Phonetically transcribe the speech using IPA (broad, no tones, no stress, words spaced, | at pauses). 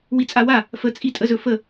wit͡sʼawa | fə t͡sʼitʼəzɵfə